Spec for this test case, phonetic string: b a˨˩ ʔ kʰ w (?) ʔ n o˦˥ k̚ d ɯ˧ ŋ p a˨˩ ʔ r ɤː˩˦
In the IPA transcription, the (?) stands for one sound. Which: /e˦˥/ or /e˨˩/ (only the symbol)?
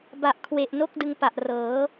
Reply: e˨˩